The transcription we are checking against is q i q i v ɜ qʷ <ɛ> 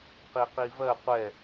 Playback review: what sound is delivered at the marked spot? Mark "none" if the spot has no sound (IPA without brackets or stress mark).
ɛ